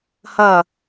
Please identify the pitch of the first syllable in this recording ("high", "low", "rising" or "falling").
falling